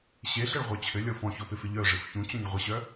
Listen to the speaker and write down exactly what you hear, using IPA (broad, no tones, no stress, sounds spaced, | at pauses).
ɕ e ɬ ɘ ɭ ʁʷ œ t͡ɕʰ ɘ lʲ ɔ f ɔ̃ ç ɔ p ɪ f ɪ ʎ œ ʐ ɘ f ç ũ t͡ɕ ɔ̃ ɲ ʁʷ ə ɕ œ